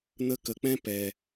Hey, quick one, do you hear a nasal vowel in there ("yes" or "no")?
yes